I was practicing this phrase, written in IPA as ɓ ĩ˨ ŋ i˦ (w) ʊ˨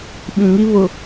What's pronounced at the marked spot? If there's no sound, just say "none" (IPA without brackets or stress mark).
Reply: β